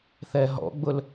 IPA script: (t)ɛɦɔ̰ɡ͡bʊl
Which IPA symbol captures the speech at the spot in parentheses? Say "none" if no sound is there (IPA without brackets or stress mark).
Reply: θ